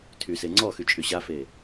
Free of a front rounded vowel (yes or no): no